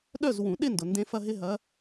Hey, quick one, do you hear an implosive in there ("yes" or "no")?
yes